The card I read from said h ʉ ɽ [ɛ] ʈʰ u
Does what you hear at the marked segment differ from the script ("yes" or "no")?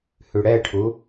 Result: no